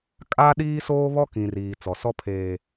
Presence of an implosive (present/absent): present